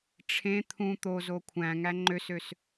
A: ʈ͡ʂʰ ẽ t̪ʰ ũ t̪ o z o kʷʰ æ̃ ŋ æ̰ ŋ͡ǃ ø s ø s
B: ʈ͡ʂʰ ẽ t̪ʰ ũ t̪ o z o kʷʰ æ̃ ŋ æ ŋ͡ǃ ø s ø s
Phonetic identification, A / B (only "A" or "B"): B